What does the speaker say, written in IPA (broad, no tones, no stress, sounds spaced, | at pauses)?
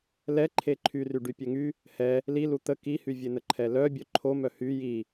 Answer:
l ɛ ǃʰ e ǃʰ y r y ɖ y pʲ ɛ ŋ y | h ɛ | l i l u t̪ ə k i h y vʲ e n ə ǃʰ ɛ l œ bʲ œ ǃʰ o m œ h y j i